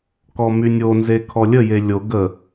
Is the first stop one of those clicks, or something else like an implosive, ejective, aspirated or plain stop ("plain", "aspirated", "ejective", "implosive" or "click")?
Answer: plain